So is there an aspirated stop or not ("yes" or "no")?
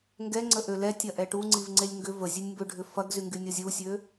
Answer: no